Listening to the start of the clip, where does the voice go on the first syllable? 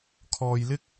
low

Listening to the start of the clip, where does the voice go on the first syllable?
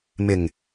low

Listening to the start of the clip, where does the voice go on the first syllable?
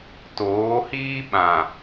rising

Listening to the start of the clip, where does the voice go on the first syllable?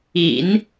low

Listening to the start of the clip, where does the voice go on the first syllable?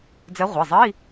rising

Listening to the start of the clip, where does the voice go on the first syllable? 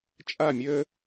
falling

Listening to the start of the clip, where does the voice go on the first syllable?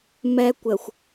high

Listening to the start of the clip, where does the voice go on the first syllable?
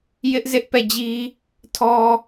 high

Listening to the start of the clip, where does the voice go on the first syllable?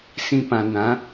low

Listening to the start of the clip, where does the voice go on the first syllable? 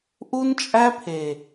high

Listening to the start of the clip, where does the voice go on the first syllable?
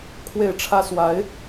falling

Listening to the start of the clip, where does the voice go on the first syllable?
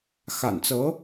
low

